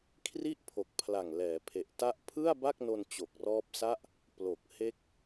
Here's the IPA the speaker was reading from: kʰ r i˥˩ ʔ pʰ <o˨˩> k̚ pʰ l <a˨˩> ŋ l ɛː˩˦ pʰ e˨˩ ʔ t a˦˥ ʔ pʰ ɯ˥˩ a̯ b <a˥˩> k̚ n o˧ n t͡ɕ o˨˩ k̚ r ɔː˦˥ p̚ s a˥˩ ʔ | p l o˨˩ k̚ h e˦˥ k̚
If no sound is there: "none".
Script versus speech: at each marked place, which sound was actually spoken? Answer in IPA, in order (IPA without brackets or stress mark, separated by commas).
o˨˩, a˨˩, a˥˩